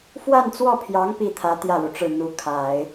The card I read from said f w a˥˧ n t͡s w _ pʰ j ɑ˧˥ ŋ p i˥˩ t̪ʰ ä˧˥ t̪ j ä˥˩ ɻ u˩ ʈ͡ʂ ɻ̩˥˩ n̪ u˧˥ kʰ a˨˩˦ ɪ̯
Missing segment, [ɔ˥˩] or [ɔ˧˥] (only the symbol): ɔ˥˩